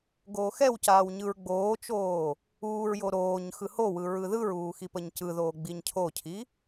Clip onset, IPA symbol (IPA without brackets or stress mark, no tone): ɡ